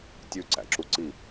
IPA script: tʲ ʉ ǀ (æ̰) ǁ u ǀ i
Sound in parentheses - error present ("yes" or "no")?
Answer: no